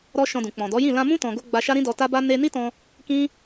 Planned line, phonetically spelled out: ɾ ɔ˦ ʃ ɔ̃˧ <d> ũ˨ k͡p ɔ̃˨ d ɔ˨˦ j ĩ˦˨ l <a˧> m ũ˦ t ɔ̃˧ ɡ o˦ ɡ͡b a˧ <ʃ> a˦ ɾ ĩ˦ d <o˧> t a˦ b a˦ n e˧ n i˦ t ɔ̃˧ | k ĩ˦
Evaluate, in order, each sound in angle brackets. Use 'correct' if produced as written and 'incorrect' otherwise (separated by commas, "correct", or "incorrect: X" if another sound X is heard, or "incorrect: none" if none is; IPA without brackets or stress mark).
correct, incorrect: ã˧, correct, incorrect: ɔ˧